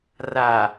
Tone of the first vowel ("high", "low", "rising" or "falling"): low